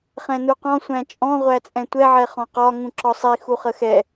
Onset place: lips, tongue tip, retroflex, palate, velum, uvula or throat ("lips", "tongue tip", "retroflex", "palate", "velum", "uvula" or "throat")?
uvula